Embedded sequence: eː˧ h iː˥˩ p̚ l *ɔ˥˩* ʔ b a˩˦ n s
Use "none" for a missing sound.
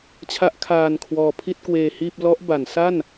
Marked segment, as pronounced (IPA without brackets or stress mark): ɔ˦˥